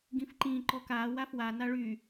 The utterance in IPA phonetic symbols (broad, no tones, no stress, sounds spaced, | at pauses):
ɡ ĩ f ǃ ĩ ǃ ɔ k a w a f w a n a ɭ y